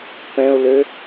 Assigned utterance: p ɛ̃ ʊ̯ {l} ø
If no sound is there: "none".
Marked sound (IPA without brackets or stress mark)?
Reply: l